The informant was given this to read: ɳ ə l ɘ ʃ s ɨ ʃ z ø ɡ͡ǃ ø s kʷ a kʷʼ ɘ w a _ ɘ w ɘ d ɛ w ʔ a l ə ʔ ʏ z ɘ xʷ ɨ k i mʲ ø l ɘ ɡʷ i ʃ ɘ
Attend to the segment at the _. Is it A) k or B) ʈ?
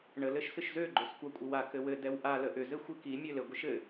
A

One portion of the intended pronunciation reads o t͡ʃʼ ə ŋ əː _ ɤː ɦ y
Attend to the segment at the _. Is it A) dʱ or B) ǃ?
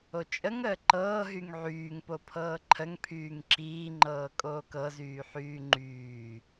B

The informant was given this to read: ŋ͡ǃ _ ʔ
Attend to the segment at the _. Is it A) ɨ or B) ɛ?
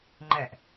B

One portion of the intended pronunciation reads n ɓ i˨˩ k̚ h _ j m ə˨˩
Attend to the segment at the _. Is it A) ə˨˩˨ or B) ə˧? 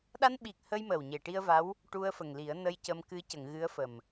B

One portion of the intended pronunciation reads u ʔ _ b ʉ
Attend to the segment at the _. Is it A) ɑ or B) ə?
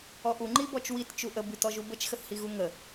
B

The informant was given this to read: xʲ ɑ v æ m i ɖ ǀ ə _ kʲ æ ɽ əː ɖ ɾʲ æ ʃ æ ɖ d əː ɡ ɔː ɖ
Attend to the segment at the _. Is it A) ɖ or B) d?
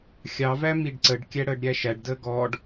A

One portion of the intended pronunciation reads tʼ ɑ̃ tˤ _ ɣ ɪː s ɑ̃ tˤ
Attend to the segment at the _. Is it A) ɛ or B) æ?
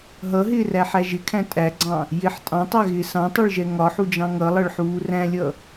B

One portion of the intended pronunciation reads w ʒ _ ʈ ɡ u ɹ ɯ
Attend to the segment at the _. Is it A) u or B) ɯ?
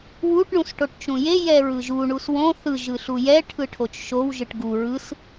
B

